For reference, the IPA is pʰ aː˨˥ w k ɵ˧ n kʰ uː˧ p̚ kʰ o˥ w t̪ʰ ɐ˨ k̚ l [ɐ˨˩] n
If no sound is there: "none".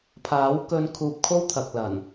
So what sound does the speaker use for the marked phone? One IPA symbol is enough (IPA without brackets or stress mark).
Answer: ɐ˨˩